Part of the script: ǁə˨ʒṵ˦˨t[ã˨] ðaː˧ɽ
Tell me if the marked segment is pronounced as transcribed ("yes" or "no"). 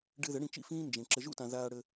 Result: yes